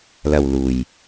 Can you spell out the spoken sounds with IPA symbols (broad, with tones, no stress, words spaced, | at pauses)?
lɐ˨w luː˨j